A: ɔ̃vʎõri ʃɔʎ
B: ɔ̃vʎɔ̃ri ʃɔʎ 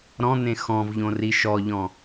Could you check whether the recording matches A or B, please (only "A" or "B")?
A